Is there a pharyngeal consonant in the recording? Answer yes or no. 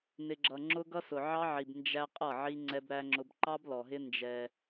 yes